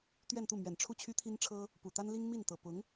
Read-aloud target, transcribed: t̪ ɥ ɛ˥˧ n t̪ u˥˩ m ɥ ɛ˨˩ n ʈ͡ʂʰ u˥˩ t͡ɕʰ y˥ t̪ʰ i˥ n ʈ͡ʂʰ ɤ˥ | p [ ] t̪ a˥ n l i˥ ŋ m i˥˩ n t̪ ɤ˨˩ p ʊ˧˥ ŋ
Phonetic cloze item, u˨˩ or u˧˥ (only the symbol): u˨˩